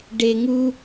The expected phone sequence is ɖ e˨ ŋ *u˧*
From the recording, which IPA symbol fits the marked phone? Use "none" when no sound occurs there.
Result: u˧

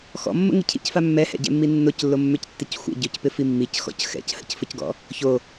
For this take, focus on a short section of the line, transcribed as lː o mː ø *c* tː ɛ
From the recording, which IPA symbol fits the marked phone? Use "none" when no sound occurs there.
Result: c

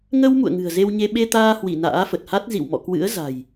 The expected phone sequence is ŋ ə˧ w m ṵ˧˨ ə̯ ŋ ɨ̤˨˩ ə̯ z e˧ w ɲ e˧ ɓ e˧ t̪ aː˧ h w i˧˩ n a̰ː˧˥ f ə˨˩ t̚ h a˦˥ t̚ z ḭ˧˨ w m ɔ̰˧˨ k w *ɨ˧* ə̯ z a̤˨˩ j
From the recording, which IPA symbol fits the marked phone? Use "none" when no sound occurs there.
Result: ɨ̰˧˥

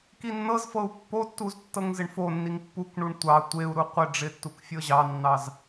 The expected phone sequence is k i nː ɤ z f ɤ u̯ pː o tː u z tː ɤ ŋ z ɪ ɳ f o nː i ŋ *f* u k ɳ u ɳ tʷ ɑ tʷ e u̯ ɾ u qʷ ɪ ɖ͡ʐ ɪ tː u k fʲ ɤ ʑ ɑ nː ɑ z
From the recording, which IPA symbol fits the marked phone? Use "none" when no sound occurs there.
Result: pː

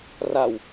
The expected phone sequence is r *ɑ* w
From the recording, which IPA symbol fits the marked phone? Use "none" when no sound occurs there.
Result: a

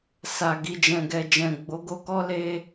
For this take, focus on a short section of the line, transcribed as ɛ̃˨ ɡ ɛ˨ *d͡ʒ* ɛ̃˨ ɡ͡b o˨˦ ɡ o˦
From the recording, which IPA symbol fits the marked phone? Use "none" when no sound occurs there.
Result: d͡ʒ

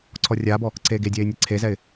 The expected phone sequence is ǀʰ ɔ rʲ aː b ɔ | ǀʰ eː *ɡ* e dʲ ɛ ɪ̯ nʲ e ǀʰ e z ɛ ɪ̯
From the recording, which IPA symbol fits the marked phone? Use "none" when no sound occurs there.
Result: ɡ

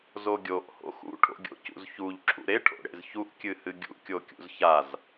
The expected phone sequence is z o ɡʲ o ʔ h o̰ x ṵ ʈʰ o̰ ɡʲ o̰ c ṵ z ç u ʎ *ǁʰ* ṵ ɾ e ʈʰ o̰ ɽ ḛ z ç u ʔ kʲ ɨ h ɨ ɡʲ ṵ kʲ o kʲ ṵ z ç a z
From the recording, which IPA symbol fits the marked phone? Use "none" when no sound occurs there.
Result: ǁʰ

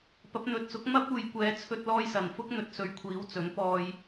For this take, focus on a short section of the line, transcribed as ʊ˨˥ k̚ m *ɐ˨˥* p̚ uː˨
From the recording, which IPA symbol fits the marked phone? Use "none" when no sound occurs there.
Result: ɐ˥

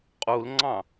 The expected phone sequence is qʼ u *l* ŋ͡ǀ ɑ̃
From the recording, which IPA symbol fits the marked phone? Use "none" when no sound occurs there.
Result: l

